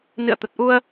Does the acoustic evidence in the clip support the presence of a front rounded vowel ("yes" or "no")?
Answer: no